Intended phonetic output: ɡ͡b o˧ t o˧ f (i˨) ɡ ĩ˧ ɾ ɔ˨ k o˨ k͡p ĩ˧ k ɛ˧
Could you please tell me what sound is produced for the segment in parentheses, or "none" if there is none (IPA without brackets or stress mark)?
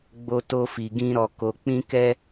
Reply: i˨